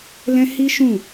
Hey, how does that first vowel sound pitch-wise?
high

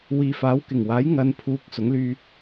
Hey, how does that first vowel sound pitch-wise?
low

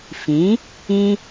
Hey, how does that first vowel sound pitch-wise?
rising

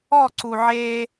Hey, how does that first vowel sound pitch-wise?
falling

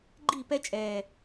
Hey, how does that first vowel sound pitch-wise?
falling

